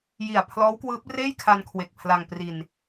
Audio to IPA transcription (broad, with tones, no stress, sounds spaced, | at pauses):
j i˨˩ a̯ pʰ l ɔː˦˥ w k w ɯː˦˥ p̚ r eː˥˩ j kʰ a˧ n kʰ w e˨˩ k̚ pʰ l a˧ ŋ p r i˧ n